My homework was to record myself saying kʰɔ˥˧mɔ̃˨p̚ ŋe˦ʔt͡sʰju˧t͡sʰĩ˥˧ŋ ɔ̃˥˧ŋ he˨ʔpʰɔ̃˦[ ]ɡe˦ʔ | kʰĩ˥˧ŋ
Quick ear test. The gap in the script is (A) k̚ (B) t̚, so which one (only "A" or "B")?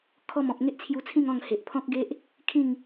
A